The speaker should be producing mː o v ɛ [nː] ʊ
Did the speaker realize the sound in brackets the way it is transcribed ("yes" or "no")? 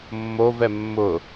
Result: no